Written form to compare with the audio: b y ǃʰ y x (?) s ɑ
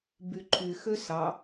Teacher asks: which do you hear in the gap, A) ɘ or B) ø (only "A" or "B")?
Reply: B